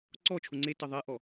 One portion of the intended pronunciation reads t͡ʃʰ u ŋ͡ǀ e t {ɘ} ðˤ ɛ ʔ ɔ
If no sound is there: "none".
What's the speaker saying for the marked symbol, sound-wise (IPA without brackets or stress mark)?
ɘ